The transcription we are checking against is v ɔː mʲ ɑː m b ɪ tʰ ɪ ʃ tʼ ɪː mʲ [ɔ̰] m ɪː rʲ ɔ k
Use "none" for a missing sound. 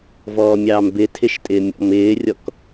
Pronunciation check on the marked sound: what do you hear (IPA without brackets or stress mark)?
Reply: ɔ̰